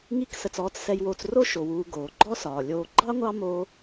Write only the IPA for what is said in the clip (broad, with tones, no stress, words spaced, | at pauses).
ŋi˦ksə˨t͡s ɔː˥t͡ssɛ˦jwoː˦t͡s ro˥ ʃo˩wuː˨ ɡoː˩ɡ͡ǃɔ˥sɒː˩ lʲoː˨ɡ͡ǃɑ˥ŋʷɑ˦ mo˦